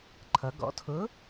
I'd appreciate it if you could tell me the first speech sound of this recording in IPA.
ǃʰ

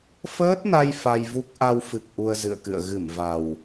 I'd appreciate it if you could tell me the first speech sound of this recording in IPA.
f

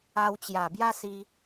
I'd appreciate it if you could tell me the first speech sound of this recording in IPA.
a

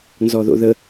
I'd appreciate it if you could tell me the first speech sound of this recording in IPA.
n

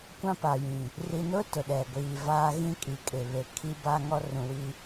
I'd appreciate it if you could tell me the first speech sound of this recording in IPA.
kʷ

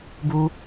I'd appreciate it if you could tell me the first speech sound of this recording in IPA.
b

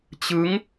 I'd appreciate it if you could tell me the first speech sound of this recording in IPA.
t͡ɕ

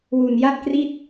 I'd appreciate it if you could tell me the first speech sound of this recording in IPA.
w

